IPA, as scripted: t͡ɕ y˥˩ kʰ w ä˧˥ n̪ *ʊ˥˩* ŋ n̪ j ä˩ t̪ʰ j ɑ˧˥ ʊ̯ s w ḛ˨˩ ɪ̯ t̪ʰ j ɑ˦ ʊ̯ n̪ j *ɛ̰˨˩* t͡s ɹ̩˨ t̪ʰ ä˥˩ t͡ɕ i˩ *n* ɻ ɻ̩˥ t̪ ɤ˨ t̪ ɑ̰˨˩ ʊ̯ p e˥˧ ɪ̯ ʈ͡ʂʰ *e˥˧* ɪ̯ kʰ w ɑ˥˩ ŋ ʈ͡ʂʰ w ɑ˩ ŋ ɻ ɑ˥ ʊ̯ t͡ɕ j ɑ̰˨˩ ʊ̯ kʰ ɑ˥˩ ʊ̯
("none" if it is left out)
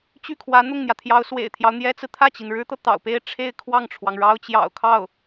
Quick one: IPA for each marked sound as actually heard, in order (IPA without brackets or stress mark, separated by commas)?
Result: ʊ˥˩, ɛ˥, n, e˥˧